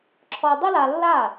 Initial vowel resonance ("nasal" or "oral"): oral